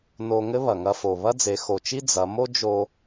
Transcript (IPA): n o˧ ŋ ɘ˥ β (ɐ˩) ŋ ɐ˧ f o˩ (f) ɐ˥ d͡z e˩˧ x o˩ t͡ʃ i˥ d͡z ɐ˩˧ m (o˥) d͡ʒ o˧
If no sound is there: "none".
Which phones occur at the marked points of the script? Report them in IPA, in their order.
ɐ˩, β, o˥

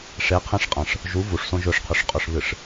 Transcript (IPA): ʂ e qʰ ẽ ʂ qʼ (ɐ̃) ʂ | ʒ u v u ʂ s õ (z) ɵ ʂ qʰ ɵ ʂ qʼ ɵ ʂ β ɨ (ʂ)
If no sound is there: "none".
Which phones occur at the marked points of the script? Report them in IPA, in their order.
ɐ̃, ʒ, ʂ

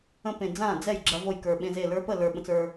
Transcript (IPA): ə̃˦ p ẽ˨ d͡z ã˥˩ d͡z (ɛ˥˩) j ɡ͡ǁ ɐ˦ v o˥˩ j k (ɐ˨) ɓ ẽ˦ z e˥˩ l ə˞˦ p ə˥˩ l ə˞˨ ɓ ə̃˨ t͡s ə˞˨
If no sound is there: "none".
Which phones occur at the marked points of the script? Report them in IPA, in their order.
ɛ˥˩, ə˞˨

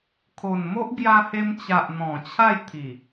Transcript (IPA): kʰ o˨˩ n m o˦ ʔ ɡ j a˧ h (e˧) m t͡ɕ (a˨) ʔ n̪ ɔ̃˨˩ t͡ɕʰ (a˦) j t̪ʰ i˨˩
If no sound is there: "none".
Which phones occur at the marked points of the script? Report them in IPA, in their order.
e˧, a˨, a˥˧

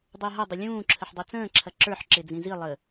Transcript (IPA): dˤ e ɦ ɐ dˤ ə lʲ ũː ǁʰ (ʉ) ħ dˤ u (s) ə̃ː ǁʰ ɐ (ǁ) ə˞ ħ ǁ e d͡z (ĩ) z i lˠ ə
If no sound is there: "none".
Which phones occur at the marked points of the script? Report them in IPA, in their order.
ə, t͡s, ǁ, ĩ

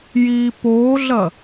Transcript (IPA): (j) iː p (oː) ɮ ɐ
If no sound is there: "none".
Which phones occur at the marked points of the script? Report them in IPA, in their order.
j, oː

